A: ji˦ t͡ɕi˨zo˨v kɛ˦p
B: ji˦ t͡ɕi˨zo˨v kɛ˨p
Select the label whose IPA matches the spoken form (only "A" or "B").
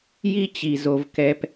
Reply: B